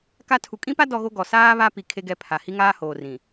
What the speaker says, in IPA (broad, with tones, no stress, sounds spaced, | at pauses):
k a˦ tʰ u˨ kʼ ĩ˦ p a˦ d ɔ˦ ɣ o˦ ɡ ɔ˨ s aː˦ β a˦ p i˨ kʰ e˦ ɡ ɛ˦˨ pʰ a˨ h i˦ ŋ aː˦ h oː˨ r ĩ˨